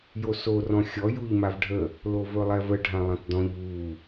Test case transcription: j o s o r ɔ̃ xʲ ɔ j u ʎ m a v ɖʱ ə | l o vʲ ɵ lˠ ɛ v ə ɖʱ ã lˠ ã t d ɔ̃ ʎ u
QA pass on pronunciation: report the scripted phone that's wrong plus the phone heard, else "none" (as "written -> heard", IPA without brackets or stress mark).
vʲ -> v